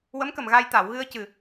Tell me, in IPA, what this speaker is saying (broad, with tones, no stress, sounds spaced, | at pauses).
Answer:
w ə˧˥ m k ə˨˩ m ɣ a˧ j t̪ a˨˩˨ w ɣ ɨ˧ ə̯ c ɨ˨˩